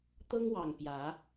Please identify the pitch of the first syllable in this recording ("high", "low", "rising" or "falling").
high